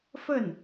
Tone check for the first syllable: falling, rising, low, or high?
falling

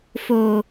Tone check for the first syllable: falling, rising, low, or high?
low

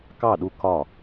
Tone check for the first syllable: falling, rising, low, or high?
falling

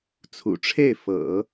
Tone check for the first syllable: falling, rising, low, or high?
low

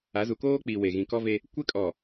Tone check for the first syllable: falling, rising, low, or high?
rising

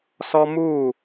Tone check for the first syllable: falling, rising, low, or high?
high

